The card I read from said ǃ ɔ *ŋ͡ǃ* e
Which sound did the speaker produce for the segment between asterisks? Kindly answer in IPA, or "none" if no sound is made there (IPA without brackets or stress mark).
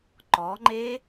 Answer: ŋ͡ǃ